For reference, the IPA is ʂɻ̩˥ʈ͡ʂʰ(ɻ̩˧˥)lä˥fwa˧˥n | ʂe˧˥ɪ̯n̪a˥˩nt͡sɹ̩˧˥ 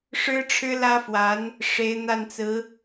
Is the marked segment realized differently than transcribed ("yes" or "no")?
yes